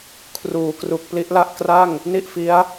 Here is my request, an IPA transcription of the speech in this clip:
kʰ r uː˩˦ k r u˨˩ k̚ p l i˦˥ ʔ l a˥˩ ʔ k r a˥˩ ŋ | n i˥˩ ʔ f i˦˥ a̯

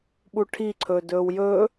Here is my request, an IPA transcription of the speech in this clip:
ɓ u ʈʰ i ǀʰ ɵː d ɵː w j ɵː

